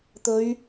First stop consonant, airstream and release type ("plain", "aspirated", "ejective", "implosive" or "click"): plain